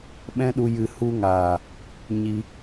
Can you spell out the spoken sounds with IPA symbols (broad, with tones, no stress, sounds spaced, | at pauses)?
ɓ ɛ̃˦ ɗ u˧ j ɨ˧ h u˦ ŋ aː˨ | ɲ i˧